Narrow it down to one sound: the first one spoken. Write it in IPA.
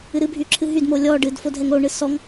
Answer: ɨ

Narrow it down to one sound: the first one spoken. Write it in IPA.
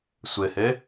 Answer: sʷ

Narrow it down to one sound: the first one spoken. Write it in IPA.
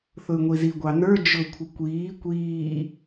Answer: θ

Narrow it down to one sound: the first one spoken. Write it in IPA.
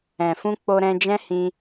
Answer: ɛ̃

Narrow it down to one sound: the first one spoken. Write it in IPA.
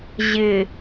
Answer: ʑ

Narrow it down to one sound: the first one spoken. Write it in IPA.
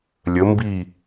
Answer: lʲ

